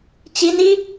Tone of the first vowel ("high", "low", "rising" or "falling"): high